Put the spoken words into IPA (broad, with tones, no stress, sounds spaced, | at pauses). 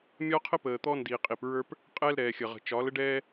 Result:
mʲ ɒ˦ qʰ ə˦ p əː˨ t̪ ɔ˦ n d i˨ qʼ i˨ p ɹ ə˞˦ p | qʼ ɛ˦ l ɾ ɛː˨ xʲ ə˨ ʁ ə̤˨ t͡ʃ ɒ˨˦ l ə˦ ɖ ɛː˦